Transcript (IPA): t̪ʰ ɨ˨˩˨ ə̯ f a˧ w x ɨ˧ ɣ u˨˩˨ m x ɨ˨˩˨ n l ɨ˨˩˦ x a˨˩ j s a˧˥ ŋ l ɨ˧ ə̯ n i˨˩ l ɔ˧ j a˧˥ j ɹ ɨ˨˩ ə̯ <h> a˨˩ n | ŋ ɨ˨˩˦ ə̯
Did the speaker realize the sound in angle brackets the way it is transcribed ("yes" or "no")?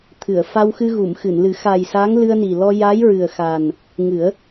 no